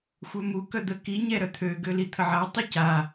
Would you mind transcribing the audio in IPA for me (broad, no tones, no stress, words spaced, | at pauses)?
xʷœmu kœd̪ə ki ɲɛɾœt̪ʰø ɡølit̪ʰəʕa tˤyca